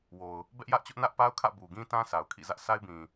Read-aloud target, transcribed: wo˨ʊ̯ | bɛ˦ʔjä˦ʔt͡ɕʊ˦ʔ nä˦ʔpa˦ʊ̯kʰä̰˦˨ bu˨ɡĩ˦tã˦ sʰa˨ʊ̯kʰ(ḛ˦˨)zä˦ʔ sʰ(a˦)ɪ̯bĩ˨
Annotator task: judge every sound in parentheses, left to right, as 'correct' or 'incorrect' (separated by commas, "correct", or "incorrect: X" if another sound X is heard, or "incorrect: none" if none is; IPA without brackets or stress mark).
incorrect: ḭ˦˨, correct